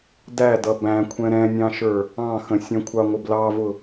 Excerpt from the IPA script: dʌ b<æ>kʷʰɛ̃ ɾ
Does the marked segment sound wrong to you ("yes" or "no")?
yes